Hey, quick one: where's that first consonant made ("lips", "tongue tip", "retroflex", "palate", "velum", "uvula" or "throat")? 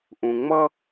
throat